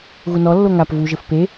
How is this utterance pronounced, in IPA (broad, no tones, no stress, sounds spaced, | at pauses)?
ɣ u n ɔ lː o ŋ a p v u ʒ ɘ f p e